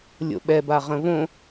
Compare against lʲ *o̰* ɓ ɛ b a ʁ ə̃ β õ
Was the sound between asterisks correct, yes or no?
yes